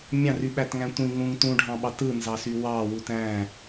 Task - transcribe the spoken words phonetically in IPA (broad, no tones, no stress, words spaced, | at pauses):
mʲɑ̃ryɓætŋæ̃ tʷĩ ŋũŋ tũɖʱɑ̃ɓɑt ɯnzɑsy wɑwut æ̃